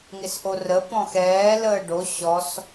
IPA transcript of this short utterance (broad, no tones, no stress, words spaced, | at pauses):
ŋɪsʔorə pɔ̃xɛː ləːɖo ɕɔs